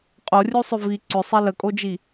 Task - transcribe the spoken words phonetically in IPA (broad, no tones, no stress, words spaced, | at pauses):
qʼorʲusˤʏ vi ǀʏsˤi ləkʼod͡ʒi